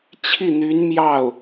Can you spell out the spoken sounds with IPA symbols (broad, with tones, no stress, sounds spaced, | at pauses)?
t͡ɕʰ i˥˩ n̪ y˧˥ n m j ɑ˥˩ ʊ̯